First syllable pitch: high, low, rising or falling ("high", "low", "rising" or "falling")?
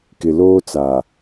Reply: low